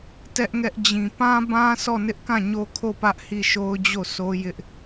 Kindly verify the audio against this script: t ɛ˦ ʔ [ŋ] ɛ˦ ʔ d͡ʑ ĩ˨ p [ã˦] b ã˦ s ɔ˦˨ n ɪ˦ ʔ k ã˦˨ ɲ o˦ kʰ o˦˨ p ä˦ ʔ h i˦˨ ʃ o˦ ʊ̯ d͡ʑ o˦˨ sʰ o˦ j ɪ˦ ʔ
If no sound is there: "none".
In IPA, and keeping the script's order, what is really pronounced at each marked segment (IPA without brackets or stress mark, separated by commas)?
ŋ, ã˦